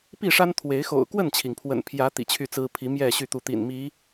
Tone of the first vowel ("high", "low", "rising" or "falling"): falling